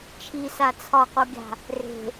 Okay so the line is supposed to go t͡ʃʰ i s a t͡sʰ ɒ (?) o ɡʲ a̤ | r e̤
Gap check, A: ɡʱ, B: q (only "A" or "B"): B